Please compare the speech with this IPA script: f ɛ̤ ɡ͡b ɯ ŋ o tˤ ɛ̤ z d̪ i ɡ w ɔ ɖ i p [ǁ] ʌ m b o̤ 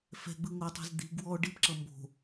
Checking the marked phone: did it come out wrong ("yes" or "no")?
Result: no